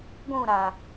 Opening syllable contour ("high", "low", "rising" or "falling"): falling